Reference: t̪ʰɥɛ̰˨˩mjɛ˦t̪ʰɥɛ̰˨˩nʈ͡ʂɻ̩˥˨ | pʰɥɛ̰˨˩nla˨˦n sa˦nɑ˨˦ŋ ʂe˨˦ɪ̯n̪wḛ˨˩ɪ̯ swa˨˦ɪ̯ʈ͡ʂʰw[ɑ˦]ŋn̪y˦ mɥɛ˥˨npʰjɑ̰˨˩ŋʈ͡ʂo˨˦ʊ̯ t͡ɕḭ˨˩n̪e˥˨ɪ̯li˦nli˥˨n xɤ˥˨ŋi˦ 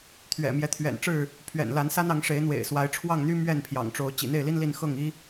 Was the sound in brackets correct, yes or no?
no